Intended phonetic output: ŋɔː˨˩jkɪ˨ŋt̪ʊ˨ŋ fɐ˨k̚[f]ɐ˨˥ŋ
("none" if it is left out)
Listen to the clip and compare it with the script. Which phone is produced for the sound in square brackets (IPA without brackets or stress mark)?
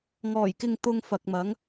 m